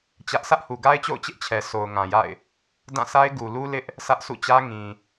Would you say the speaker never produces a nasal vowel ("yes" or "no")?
no